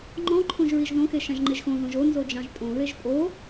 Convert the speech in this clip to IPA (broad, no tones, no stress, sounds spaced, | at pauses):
ŋ͡ǃ ɔ̃ ǃʰ õ ʒ ɹ i ʒ ð õ x e ʃ ã ʒ ŋ͡ǃ e ʒ x õ ð õ ʒ o n z o d͡ʒ ɑ̃ ʒ tʼ õ ɹ e ʒ pʼ o